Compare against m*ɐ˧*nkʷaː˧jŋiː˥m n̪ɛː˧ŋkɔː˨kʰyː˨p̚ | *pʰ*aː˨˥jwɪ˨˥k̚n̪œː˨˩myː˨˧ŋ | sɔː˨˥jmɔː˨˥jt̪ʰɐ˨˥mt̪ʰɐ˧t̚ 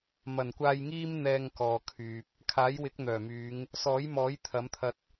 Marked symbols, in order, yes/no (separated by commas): no, no